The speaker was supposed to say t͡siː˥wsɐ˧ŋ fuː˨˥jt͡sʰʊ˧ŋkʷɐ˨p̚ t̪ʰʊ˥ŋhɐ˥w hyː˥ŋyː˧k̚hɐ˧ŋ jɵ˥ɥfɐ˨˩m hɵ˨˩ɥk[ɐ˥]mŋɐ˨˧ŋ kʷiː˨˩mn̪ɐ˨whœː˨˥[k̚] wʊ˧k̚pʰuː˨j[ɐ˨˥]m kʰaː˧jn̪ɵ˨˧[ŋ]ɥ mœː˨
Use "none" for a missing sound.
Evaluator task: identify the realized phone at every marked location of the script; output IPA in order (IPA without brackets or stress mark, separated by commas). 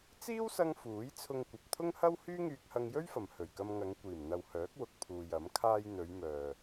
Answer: ɐ˧, k̚, ɐ˨˥, none